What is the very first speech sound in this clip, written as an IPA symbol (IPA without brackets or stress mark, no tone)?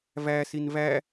v